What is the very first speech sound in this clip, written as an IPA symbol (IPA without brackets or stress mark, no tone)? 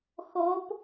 x